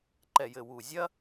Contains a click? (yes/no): yes